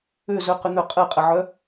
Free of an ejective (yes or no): no